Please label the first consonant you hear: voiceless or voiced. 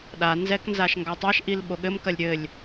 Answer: voiced